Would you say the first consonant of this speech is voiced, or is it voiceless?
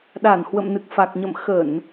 voiced